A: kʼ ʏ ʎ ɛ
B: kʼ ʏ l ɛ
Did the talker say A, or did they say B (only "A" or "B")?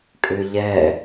A